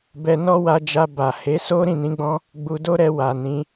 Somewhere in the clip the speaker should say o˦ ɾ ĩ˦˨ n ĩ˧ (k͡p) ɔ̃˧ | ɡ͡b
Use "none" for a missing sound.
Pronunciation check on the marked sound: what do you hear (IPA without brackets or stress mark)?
ɡ͡b